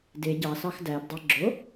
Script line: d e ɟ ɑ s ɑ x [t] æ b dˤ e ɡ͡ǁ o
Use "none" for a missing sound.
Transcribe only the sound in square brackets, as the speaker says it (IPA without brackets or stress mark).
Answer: d